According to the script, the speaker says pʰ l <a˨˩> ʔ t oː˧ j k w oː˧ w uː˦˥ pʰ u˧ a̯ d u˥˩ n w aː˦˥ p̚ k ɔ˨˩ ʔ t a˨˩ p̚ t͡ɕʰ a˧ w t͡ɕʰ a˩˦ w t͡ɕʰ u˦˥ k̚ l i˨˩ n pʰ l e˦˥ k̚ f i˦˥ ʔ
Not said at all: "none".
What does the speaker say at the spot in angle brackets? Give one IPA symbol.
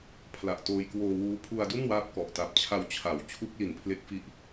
a˨˩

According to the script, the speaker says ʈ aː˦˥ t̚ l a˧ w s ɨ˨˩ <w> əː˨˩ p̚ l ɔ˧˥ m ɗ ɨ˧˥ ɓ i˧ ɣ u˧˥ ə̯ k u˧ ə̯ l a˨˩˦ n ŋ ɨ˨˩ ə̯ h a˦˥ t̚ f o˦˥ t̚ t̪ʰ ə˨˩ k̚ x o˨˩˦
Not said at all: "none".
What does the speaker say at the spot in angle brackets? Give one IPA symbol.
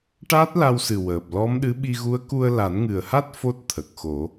w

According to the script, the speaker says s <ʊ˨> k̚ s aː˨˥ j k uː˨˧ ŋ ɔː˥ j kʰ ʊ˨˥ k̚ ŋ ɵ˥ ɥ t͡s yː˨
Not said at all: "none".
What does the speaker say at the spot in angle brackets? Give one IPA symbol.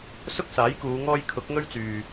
ʊ˥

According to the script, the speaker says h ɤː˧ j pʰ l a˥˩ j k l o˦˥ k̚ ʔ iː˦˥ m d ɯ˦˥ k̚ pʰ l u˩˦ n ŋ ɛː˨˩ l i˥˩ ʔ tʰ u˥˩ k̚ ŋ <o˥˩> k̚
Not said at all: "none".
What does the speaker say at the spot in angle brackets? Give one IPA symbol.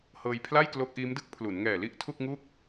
u˥˩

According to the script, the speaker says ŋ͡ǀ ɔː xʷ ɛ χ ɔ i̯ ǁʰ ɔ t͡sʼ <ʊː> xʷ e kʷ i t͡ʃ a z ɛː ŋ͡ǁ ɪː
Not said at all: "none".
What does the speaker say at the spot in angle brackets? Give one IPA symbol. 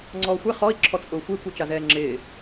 ʊː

